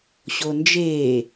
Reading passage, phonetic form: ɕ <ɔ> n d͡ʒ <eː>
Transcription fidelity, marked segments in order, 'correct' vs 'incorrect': incorrect: o, correct

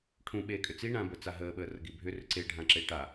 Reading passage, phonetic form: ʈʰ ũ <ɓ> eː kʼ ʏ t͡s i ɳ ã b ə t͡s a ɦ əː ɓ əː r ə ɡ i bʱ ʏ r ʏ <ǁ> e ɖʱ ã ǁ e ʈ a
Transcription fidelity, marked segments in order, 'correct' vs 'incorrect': correct, incorrect: ǀ

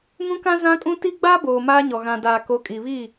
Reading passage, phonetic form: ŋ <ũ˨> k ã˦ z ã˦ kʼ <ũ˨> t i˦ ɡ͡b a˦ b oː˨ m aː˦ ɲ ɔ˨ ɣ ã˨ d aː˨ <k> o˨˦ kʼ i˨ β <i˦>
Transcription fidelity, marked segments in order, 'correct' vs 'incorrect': incorrect: ũ˦, incorrect: ũ˦, correct, incorrect: i˦˨

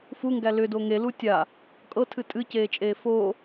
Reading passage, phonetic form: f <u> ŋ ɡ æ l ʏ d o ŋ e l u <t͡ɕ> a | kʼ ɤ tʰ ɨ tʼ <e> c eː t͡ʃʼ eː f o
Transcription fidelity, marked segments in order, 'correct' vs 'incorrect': correct, incorrect: tʲ, incorrect: ɨ

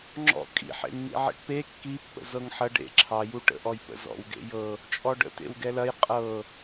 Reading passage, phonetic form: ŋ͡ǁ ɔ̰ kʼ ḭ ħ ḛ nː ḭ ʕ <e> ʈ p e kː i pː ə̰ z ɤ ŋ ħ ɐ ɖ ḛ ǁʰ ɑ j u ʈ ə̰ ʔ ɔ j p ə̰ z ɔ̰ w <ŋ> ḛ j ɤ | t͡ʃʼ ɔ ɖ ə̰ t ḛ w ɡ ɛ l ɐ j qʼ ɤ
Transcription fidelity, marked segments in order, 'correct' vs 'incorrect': incorrect: ḛ, incorrect: ɡ

